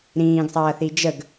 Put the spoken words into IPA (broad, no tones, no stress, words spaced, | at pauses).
ɾĩːɡsˤɐːθi d͡ʒəɡ